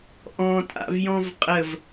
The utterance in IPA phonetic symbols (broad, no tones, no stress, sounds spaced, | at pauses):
ʔ ɔ̃ tʼ a̰ v j ɔ̃ v qʼ ə v